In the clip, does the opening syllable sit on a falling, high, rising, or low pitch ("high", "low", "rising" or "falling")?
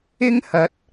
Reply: high